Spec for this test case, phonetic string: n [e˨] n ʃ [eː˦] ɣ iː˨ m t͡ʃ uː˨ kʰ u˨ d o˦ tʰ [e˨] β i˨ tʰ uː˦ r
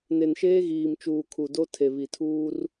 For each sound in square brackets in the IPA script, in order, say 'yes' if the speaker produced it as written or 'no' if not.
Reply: yes, yes, yes

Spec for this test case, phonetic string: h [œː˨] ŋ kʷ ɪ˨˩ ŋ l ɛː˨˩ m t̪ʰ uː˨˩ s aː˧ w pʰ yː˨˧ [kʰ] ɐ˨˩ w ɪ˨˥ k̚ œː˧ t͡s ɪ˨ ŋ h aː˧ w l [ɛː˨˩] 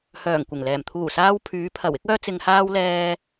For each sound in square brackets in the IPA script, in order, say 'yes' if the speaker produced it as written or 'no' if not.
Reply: no, no, no

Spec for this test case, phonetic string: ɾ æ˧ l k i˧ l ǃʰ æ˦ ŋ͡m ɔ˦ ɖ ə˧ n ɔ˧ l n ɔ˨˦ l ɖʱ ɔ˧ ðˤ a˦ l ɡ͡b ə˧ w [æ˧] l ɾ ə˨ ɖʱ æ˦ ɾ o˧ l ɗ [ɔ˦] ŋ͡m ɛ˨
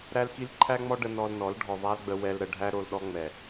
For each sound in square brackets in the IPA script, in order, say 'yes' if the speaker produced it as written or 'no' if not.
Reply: no, yes

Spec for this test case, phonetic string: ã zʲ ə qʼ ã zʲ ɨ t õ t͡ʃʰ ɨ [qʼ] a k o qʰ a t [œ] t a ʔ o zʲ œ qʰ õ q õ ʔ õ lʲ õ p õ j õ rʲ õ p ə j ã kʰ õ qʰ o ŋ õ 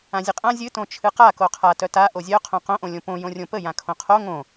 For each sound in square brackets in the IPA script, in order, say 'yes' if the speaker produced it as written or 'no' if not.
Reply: no, yes

